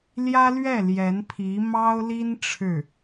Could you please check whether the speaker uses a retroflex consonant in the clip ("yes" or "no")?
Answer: yes